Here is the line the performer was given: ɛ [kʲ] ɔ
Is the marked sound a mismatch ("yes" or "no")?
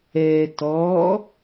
yes